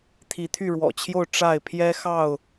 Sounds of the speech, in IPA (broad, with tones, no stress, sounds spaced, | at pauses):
t̪ʰ i˨˦ t̪ʰ y˥˨ ɻ w ɔ̰˨˩ t͡ɕʰ j o˥˨ ʊ̯ ʈ͡ʂ a˥˨ ɪ̯ pʰ j ɛ˦ x ɑ˥˨ ʊ̯